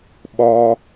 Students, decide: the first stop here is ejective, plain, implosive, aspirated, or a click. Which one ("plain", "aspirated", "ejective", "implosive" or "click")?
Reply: implosive